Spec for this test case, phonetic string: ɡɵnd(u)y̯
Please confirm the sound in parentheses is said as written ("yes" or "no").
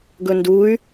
yes